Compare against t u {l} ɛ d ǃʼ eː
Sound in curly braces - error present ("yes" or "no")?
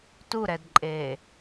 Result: yes